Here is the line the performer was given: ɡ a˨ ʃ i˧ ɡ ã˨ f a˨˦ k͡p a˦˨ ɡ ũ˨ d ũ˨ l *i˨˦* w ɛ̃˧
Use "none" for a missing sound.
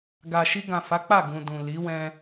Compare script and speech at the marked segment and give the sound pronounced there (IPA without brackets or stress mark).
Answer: i˨˦